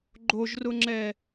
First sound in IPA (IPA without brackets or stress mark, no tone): ɡ͡ǃ